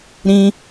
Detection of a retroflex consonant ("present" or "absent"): absent